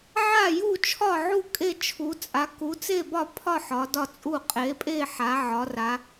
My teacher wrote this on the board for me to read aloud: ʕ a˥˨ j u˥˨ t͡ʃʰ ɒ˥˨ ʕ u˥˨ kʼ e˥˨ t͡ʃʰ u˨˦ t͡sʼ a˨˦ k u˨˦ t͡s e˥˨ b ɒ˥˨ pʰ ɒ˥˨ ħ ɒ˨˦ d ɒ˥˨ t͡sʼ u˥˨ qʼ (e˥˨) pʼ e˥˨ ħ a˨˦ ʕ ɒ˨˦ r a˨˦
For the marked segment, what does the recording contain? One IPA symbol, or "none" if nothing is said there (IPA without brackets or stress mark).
e˨˦